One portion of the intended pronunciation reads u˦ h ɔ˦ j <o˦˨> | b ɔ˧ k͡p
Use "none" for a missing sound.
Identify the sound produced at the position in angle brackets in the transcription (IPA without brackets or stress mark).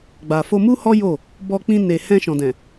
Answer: o˦˨